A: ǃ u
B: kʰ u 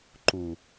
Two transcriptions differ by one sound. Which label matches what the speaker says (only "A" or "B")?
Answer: A